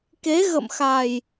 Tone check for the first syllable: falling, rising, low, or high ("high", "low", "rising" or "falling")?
rising